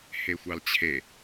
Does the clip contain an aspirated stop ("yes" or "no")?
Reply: yes